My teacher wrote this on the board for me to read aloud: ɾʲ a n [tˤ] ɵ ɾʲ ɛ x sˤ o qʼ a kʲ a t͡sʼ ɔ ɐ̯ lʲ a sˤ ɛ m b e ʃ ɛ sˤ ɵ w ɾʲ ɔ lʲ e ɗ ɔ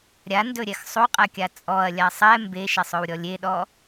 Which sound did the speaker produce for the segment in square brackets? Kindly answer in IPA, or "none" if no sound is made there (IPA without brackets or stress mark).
d